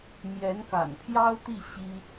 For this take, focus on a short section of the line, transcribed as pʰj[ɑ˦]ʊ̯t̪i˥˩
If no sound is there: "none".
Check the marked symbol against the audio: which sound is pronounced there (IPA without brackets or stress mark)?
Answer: ɑ˥